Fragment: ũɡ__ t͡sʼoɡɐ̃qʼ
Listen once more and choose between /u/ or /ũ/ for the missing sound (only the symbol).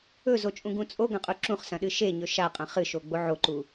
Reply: ũ